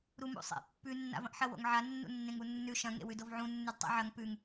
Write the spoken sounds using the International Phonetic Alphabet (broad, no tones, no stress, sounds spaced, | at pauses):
ɾ u m ṵ sˤ ḛ pː ʉ nː a̰ v ɐ̃ ʔ ħ ɐ w o̰ ŋ ʕ a nː ṵ nː ẽ ŋ u nː ʉ ʃ ɐ̃ ŋ ḛ w ʉ d o v ʕ ũ nː ʉ d tˤ ḛ ʕ ɐ ŋ p ʉ ŋ